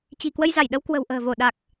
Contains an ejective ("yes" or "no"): no